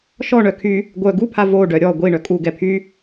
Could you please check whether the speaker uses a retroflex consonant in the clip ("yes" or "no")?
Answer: yes